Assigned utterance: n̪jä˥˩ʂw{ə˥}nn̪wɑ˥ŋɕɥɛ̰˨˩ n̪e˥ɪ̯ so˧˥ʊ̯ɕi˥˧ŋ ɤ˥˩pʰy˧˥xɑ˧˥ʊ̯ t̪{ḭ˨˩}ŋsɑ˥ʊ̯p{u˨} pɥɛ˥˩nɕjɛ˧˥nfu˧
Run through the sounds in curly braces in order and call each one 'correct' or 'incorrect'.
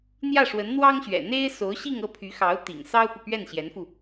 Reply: incorrect, correct, correct

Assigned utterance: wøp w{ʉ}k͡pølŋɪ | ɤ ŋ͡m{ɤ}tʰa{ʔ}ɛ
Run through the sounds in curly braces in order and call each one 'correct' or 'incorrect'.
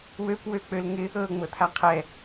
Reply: incorrect, correct, incorrect

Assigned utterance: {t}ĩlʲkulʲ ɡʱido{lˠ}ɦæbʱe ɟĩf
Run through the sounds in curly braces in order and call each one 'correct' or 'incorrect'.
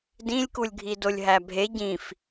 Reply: incorrect, incorrect

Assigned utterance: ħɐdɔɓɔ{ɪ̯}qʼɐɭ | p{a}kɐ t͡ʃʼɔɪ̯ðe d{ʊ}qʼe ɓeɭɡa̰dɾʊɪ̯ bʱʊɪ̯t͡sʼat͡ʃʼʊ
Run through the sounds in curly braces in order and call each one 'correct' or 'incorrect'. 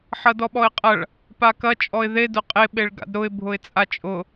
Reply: correct, correct, correct

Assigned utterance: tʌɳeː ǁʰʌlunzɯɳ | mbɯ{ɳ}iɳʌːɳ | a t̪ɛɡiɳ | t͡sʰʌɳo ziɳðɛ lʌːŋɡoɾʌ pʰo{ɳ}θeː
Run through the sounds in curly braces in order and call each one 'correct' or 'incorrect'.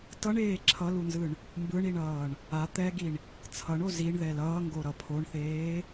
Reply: correct, correct

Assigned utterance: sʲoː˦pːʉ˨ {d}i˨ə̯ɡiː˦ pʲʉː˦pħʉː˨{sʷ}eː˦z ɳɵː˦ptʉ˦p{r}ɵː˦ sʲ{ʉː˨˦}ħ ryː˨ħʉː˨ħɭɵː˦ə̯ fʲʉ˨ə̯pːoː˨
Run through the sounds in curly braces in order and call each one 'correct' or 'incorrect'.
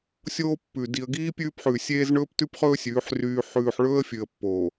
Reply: correct, incorrect, incorrect, correct

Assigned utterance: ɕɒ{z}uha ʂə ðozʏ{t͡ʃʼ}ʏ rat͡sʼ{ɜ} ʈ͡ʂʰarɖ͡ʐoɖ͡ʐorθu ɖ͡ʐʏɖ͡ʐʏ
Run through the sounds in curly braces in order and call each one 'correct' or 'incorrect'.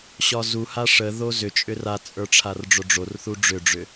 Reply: correct, correct, incorrect

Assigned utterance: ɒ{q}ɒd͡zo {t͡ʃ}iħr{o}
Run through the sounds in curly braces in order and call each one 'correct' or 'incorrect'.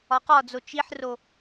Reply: correct, correct, correct

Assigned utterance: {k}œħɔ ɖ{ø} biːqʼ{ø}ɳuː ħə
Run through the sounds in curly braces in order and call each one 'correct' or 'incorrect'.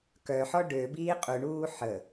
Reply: correct, correct, incorrect

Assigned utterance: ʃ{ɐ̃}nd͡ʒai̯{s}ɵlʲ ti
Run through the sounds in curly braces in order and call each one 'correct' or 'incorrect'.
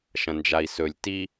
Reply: correct, correct

